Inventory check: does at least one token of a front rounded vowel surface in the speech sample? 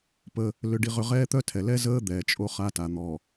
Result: yes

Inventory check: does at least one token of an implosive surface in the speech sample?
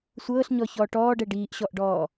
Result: no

